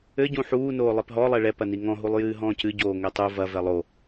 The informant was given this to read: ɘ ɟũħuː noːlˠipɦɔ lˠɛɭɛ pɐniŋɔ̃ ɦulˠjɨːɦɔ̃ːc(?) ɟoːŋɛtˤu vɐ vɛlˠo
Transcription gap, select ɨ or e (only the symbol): ɨ